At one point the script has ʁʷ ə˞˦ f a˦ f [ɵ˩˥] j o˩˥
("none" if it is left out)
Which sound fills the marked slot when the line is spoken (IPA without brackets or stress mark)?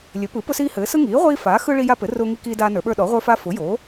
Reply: ʊ˩˥